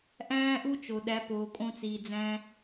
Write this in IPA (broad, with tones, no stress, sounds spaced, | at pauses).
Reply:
ʔ æ̃ː˦ ʔ u˦ t͡ʃ o˨ ɗ æ˨˦ p oː˨ kʼ õ˧ t͡s iː˨ d͡z æ̃˧